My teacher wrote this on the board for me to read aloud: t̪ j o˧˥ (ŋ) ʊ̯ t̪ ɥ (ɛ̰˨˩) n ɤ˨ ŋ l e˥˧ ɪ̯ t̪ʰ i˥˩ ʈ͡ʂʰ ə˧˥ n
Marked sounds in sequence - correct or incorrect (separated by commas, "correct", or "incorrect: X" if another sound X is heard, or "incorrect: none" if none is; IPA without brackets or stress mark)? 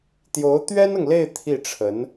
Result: incorrect: none, incorrect: ɛ˥